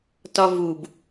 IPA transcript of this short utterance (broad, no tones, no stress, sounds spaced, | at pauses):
t ɒ v u b